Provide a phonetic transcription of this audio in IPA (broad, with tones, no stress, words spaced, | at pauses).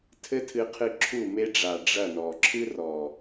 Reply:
tʰɘ˦tʰɨ˧qʰɨ˧ ǁʰu˦˨ me˧ɖ͡ʐa˨ ɖ͡ʐɐ˦˨nɔ˨ ǁʰɨ˦rɔ˨